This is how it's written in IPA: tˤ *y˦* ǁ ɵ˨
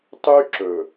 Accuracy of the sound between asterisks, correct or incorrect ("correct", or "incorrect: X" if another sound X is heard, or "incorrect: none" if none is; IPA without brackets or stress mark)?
correct